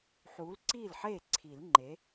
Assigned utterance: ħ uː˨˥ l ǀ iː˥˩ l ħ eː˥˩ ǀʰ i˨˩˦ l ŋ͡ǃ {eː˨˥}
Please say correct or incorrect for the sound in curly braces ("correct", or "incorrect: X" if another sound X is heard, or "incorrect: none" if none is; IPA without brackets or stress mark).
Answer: incorrect: e˨˥